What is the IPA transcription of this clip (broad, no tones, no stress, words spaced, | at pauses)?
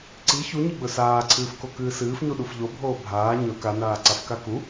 ǀi çuɲiɡ͡bɵ saːǀʰɨːfkokɨː sɨːfɲuɗuf ʎobʱoː bʱaː ɲɵ kanaːǀafka ku